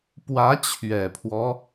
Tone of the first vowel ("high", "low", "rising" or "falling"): rising